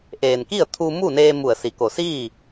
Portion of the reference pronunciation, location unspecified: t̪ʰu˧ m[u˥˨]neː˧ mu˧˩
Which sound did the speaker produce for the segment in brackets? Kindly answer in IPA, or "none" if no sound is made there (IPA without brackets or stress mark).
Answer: u˥˨